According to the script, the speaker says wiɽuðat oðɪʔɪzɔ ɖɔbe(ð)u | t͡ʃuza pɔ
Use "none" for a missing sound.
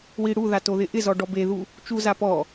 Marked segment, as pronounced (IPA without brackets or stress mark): ð